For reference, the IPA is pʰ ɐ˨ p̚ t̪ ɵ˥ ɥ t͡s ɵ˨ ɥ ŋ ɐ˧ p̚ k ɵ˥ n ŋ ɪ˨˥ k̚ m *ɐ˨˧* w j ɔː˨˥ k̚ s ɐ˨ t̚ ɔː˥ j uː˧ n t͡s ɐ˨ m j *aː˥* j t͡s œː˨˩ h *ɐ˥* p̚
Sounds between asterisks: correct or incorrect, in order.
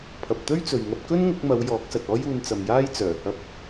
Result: correct, correct, correct

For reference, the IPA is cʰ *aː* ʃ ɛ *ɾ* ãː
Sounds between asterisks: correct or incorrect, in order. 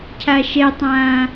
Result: incorrect: a, incorrect: tˤ

